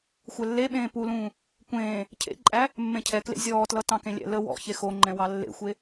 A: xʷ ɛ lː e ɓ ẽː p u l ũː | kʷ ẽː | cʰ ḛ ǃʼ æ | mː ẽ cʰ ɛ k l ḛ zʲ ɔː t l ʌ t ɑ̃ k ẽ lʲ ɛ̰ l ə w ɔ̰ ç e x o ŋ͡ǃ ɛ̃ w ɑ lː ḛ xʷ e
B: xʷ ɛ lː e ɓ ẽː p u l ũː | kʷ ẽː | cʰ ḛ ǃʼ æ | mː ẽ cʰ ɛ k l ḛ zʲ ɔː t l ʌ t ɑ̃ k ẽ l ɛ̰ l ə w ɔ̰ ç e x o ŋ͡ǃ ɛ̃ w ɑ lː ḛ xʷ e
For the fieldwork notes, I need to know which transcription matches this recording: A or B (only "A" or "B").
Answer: A